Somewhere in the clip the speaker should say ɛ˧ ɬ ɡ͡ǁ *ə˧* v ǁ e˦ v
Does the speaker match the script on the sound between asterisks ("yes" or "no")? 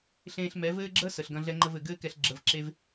yes